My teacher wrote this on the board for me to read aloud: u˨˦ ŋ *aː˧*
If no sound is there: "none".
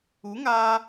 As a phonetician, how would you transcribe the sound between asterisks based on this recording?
aː˧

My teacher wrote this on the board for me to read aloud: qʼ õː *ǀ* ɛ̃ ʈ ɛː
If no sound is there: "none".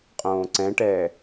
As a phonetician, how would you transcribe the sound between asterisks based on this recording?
ǀ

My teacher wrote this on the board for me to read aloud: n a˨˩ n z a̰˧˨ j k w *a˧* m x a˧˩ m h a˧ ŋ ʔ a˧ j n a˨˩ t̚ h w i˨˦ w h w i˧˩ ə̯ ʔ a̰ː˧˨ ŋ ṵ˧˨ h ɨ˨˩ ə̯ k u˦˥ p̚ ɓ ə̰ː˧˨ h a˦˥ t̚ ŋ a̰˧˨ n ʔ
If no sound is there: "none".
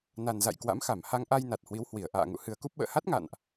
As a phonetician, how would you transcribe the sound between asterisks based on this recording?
a̰˧˥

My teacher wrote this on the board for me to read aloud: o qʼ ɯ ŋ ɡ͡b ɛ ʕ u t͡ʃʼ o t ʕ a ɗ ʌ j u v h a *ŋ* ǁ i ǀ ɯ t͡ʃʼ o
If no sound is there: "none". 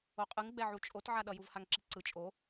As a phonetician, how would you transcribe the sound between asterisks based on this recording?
ŋ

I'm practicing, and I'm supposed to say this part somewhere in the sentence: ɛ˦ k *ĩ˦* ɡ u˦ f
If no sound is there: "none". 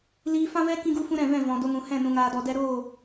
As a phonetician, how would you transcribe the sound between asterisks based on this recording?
ĩ˦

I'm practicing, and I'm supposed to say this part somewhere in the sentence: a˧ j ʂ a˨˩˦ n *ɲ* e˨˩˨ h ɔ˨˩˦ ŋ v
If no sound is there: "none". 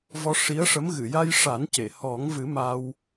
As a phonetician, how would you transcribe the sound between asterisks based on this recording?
c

